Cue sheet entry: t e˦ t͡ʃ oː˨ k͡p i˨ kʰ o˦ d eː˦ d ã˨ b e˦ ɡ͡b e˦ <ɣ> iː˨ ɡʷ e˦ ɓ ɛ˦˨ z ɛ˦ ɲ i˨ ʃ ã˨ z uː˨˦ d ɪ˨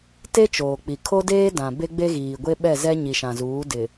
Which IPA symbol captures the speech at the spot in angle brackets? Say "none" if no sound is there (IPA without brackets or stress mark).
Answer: ɣ